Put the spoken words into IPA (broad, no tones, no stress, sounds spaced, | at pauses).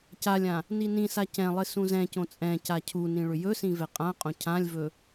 c a lʲ ã | n i n ĩ s a c ɛ̃ lˠ ɪ s ũ z ɛ̃ c õ t͡sʼ ɛ̃ c a cʰ u n ĩ ɭ ʏ j ɵ s ĩ v ɛ qʼ ã qʼ õ cʰ ã lʲ v ɵ